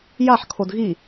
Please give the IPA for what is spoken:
j a ħ kʰ o d ɣ i

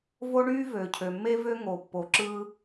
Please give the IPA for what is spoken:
v o˥ ɳ yː˥ v øː˩ cʰ ø˩ mː e˥ v ø˥ ŋ o˩ pː o˩ ǁ ɯː˥

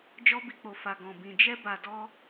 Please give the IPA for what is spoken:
d͡ʒ ɔ˧ b i˨ k͡p o˨ f a˨ ɡ ɔ̃˨ b ĩ˨ d͡ʒ ɛ˧ b a˨ d ɔ˧

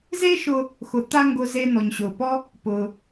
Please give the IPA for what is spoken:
z e˥ ʃ ʊ˧ | x ʊ˩ t̪ a˧ ŋ ɡ ʊ˧ z e˧ n̪ ɔ˩ ɲ ɕ ʊː˩ p ɔ˥ | p ʊː˩

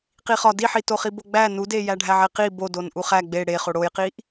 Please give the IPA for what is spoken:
q i χ ɒ d i ħ i t o χ i b o ɡ͡b æ n u d e j æ ɖʱ æ ʕ e q i b o d o n ʔ u χ æ ɡ͡b e ɽ e χ o ɽ o j q i ʔ

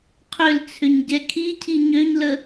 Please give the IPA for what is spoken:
qʰ ʏ l t͡sʰ ʏ ɲ ɟ ɛ kʰ i cʰ i ɲ ø ɲ l ə

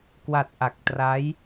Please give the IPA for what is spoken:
k w a˨˩ t̚ ʔ a˨˩ k̚ t r a˦˥ j

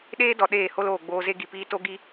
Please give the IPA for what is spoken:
ɗ eː˦ d ɔ˨ ɗ eː˦˨ h o˦ l oː˨ ɡ͡b oː˧ z e˦ ɡ i˨ p iː˦ t o˦ ɡ i˦

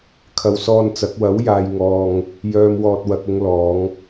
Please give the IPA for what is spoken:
kʰ ɐ˨ w s ɔː˧ n t͡s ɐ˨˥ k̚ w ɐ˨˥ w j aː˨ j ŋ ɔː˨ ŋ | j œː˨ m w ɔː˨ t̚ w ɐ˨ k̚ ʊ˧ ŋ l ɔː˨˧ ŋ

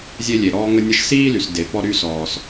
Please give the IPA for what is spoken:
zʲ e˥ lʲ e˩ ɾ ɔː˥ ŋ ə˥ nʲ ə˥ ʃ s iː˥ l y˩ s d e˩ p ɔ˥ ɾ y˥ s ɔː˩ s

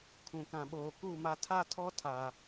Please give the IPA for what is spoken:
kʰ ũ˨ k ã˨ ɓ oː˨ k u˦˨ m a˦ tʰ a˦ tʰ ɔ˦ tʰ a˨

